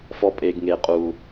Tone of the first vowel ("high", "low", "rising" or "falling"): high